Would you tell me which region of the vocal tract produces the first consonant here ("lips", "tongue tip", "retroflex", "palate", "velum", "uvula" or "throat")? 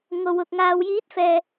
velum